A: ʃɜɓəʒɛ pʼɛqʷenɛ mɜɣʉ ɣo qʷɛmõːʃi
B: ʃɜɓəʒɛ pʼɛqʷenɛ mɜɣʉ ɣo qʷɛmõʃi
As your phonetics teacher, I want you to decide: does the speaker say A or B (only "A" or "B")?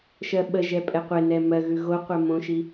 B